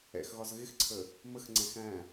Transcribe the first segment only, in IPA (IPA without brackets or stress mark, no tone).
ɛ̰